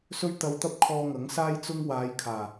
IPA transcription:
sɵ˥ɥt̪ɐ˧wt̪ɐ˥p̚ kʰɔː˧ŋɐ˨˥ŋsaː˥j t͡sʊ˥ŋ waː˨˧j kʰaː˨˩

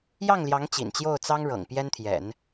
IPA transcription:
jɑ˥˩ŋljɑ˧˥ŋ t͡ɕḭ˨˩nt͡ɕjo˥˩ʊ̯ t͡sɑ˥ŋɻɤ̰˨˩ŋ pjɛ˥nt̪ʰjɛ̰˨˩˦n

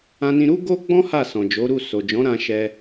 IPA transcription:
ã˧nĩ˧ɾu˦ ɡo˦ɡ͡bɔ̃˦ ha˦˨sɔ̃˨d͡ʒo˨˦ɾu˦˨ so˨d͡ʒɔ̃˨˦ɾã˧ ʃɛ˧

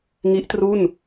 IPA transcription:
ŋi˦˥ʔtru˥˩n

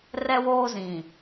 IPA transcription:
rɛ˦woː˦zĩ˨

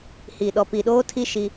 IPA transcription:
hi˨ ɗɔ˨pi˨ ɗoː˦tʰi˦ ʃi˦

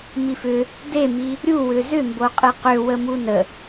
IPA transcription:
mifʏ | demi | ɾʲuwʏ zʏmbo qʼɨqʏ wəmunə

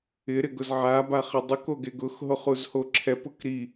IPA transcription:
ɪɾɪɡʊz ʕabaχɪ dˤukoɡe ɡʊxɦoχuzho ǁʰɛpʊk ɾi

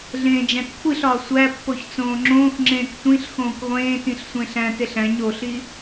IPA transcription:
ɮẽːd͡ʒæ̃tkʷʰiɬɒː sʷæpːoç t͡sõːŋ͡ǁõːxŋ͡ǁẽːk tʷĩɬxõːkʷ ʁʷẽːtĩɬ sʷẽɬæ̃teɬ æ̃ɲ oɬi

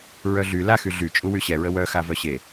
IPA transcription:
ɹœɮy laxy ɮy t͡ʃʼuwyɕɛɹə wœxa vœɕe

